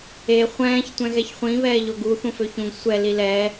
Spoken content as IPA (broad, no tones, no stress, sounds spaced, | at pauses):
e χʷ ɛ̃ː ç tʷ ɛ̃ ɣ ɛ ç χʷ ĩ β ɛː ʎ o ɡ u θ ũ f ø ç ũ ɡ sʷ ɛ l i l ɛː